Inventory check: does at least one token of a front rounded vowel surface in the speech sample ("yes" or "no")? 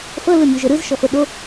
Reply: no